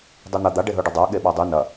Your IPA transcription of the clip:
dˤin̪ɐ d̪aɖ eɦɵɖɐdˤa ɠeɓadˤʉ nɐ

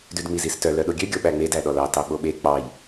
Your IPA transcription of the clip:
dʉdŋ͡mizistœ lœɗoɡʲø ɡʲoɓæŋ͡med æɗɔlɑ tɑɓoɓe k͡pɑj

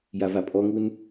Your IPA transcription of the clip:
javapʼɔŋun

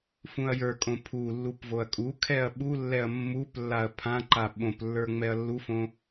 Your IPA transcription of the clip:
fũɐ̯jə˞kʼõ pʰulːup voɐ̯kʼukʰɛɐ̯ ɓulːɛɐ̯ mːuplːaɐ̯ pʰãǃa ɓõplːə˞ ŋ͡mɛɐ̯lːufõ

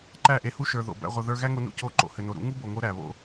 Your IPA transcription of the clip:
ǃæ˦˨ʔe˧hu˦ ʃə˞˨ðo̰˨ bæ̰˧ʁʷɐ˧ðə˞˦ ɣæ˦ŋo˧nṵ˧ co˦˨ ǃo̰˨hɘ˨no˨ɾṵ˨˦ ŋu˦bo˨ŋo˧ ɾæ˨βo̰˦

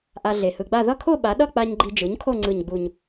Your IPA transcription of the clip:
ʔa˧ɮe˨˩hɯ˧ɡ͡ba˥˧ ðʌ˥˧kʰo˥˧ ɓa˩˥ɗʌ˥˧k͡pa˧ɲ ɡ͡ǃi˧d͡ʒɯ˩˥ɲkʰo˥˧ ŋ͡ǀɯ˨˩ɲɡ͡bu˨˩ɲ

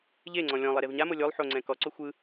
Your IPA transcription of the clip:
ʎeŋ͡ǀɔ̃ lʲɔ̃ lˠeɾevɲamo lʲolˠ ħoŋ͡ǀɛ̃ kɔǀo xʷɯ

